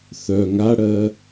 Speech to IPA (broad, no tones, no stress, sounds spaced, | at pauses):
θ œ ŋ a ɽ ɜ